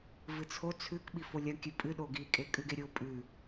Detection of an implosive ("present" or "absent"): present